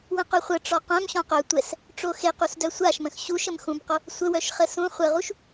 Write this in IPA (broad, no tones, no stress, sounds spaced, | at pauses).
w ə̃ q œ χʷ ə ʈ͡ʂ ɔ q œ̃ m ɕ ɔ̃ q œ tʷ ɛ s | ʈ͡ʂ o x e q u s d œ sʷ a ʃ m ə̃ x ɕ u ʃ ə m x ũ b q o | sʷ ə w œ ʃ χ ə s ũ χʷ ə ʁ u ʃ